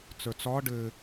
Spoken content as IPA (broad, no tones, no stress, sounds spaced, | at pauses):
t͡s ə˞ t͡s ɒ ɖ ɘ